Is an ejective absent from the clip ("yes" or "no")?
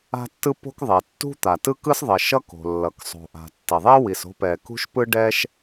yes